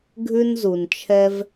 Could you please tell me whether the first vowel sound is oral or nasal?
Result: oral